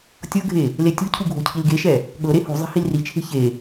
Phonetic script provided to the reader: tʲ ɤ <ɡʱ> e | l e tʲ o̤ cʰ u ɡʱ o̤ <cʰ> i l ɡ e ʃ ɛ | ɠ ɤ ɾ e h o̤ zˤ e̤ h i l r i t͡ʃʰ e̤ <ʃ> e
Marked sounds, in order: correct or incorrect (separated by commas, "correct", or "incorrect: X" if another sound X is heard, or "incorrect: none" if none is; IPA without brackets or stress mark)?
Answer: correct, correct, incorrect: ç